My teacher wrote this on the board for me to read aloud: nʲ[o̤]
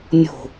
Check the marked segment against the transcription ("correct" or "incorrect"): correct